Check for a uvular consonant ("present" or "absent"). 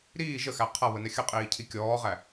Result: present